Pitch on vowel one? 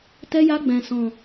high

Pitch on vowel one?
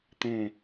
falling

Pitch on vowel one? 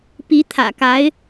rising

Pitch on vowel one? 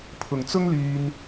low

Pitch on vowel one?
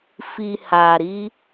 low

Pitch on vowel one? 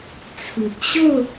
low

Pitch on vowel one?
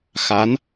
rising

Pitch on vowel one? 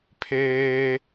high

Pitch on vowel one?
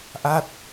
falling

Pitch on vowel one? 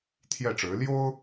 falling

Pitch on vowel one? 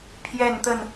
falling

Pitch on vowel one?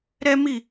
high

